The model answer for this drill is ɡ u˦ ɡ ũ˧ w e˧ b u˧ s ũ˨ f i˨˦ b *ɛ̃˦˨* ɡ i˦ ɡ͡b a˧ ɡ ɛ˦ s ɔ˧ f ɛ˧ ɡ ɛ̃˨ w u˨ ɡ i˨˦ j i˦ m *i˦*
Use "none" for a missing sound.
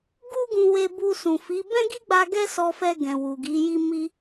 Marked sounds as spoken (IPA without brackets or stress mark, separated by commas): ɛ̃˦, i˦